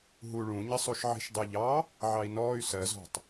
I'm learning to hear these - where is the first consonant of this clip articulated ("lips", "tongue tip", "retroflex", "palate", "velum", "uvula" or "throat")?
throat